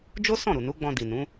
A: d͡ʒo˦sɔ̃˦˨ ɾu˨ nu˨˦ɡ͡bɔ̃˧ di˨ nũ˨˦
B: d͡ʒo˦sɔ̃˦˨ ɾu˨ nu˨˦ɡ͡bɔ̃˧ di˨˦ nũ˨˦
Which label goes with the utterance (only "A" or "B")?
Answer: A